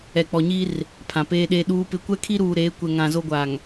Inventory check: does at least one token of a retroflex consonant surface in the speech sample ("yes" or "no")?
no